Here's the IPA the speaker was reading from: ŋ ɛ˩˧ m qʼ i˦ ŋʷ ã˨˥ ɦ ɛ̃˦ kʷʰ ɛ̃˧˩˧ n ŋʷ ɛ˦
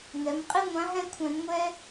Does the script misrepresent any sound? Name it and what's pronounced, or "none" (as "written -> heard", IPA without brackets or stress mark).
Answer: none